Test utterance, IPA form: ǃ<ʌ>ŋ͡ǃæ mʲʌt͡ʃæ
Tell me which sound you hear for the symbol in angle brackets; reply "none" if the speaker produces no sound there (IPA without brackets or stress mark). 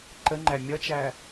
ə